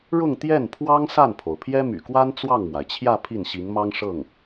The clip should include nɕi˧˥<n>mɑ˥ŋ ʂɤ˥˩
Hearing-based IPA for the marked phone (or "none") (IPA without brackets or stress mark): ŋ